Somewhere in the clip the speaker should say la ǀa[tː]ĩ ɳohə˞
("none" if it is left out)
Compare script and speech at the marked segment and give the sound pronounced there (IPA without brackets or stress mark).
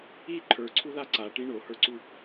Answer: ʈ